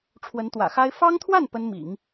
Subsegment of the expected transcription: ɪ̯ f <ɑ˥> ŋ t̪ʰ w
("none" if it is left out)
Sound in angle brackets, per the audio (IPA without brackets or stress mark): ɑ˥